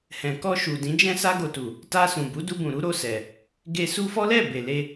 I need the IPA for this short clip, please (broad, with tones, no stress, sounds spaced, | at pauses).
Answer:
h ɛ̃˨ k ɔ˧ ʃ u˨ d ĩ˨˦ d͡ʒ ɛ̃˦ s a˦ ɡ o˧ t u˨ | t a˧ s ũ˨ b u˨˦ d u˧ b ũ˨ ɾ u˨˦ ɾ o˦˨ s ɛ˨ | ɡ e˧ s u˦ f ɔ˦ l ɛ˦˨ b e˨ l e˧